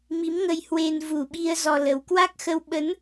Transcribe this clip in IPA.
m i˨˦ m ŋ ə˧ j h w e˧ n v u˨˩ ɓ i˧ ə̯ z ɔ˧ l ə˨˦ w k w a˦˥ k̚ x ə˧ w ɓ ə˨˦ n

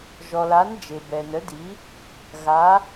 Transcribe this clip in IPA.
ʒ ɔ˩ l a˩˧ n d͡ʒ e˩ b ɛ˩ n ə˩˧ d i˩˧ | ɣ a˩˧

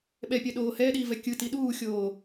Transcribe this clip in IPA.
ɓ ɛ pʲ ɛ ɗ oː h ɛː ɗ iː v ɛ kʲ ɯ t i ɗ uː xʲ oː

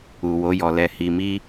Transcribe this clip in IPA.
u˨ w o˨˦ j ɔ˧ l ɛ˧ h i˧ m i˦

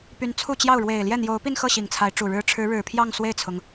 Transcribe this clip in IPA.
p y˧˥ n t͡sʰ u˥˧ t͡ɕ j ɑ˥˩ ʊ̯ ɻ w e˨˩ ɪ̯ l j ɛ˥˩ n̪ j o˧˥ ʊ̯ p i˥˧ n x ɤ˥˩ ɕ i˨˩ ŋ t͡sʰ a˧˥ ɪ̯ ʈ͡ʂ u˨˩ ɻ ɻ̩˥ ʈ͡ʂʰ ɻ̩˧˥ ɻ ɻ̩˨˩ pʰ j ɑ˥˧ ŋ s w e˥˩ ɪ̯ t͡sʰ ʊ˩ ŋ

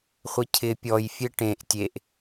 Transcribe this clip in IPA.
χʷ ɪ cʰ ɪ pʲ ɔ j fʲ e ʈ ẽ ʔ tʲ e ʔ

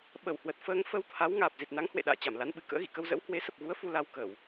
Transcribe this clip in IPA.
ɓ ə˧˩ w h w ə˨˩ t̚ f əː˧ ŋ f ə˧ w t̪ʰ a˨˦ w ŋ aː˨˩ p̚ z i˨˩ t̚ n a˨˦ ŋ h w ḛ˧˨ ɗ a̰ː˧˨ t͡ɕ a˧˩ m l a˨˦ n ɓ ɨ˨˩ k ə̰ː˧˥ ɣ ḭ˧˨ k ə˧ w z ə̰˧˥ w h w e˨˦ s ə˨˩ p̚ ɣ u˨˦ ə̯ f u˧ l a˧ w k əː˧˩˨ w

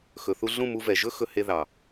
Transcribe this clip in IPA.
x ɵ˨ θ u˧ ɮ ũ˦˨ m u˧ v ɛ˨ ʒ ɵ˦ x ɵ˧ h e˧ ð ɑ˨

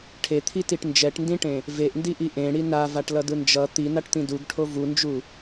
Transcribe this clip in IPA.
ʈʰ e t̪ʰ i t i ʈ n d͡ʒ ɛ ʈ n d ĩ ʈ ẽ | v e ʔ n d i ʔ i ʔ ẽ ɽ i n a v a ʈ l ʌ d ɯ n d͡ʒ ʌ t̪ i n a ʈ t̪ ĩ d u ɡ ʈʰ o v u n d͡ʒ u

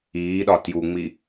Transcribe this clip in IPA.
iː ɗ ɒ t j u ŋ͡m i

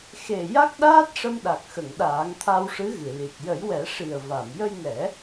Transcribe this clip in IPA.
x e˨˩ j a˦˥ k̚ ɗ aː˦˥ t̚ ʂ ə˧ m ɗ a˨˩ k̚ x ə˨˩˨ ŋ ɗ aː˨˩˦ ŋ t̪ʰ a˧ w ʂ ɨ˧˥ ɣ ɨ˨˩˨ l i˨˩ t̚ j ə˨˩˦ j w ɛ˨˩˦ ʂ i˨˩ ə̯ v a˨˩˨ m j ə˧ j n ɛ˨˩˦

